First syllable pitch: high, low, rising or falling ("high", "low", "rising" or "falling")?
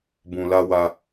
low